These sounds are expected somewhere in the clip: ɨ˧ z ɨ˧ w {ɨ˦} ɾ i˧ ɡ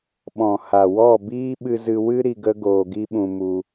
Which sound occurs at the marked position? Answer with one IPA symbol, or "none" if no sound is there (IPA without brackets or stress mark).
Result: ɨ˦